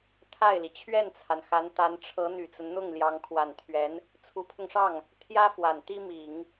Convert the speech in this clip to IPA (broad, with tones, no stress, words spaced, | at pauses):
t̪ʰa˥˩ɪ̯li˩ t͡ɕʰɥɛ˥˩nt͡sʰa˩nxa˧˥nt̪a˧˥n ʈ͡ʂʰɤ˧˥ n̪y˨˩t͡sə˦nn̪ʊ˥˩ŋ ljɑ˧˥ŋkʰwa˨˩nt̪ʰɥɛ˧˥n | t͡sʰu˧˥pʰʊ˧ŋʂɑ˥˩ŋ | t̪ʰjä˥ fwa˨˩nt̪i˥ mi˨˩˦ŋ